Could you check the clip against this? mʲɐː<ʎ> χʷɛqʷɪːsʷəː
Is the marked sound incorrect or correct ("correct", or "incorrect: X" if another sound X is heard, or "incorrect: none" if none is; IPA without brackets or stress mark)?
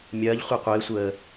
correct